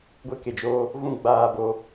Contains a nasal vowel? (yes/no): yes